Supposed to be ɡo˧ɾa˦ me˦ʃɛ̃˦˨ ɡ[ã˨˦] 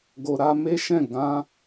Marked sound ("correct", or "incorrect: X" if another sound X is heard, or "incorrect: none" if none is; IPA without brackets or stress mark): correct